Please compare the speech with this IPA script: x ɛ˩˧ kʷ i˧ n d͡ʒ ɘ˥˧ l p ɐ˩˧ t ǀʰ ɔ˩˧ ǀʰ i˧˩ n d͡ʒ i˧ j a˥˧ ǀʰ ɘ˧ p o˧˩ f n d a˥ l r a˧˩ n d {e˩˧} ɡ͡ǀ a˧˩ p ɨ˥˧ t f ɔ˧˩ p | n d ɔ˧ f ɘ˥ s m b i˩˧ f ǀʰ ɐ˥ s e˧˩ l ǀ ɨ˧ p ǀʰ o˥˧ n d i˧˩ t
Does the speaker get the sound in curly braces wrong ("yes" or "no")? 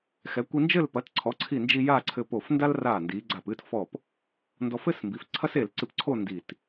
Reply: yes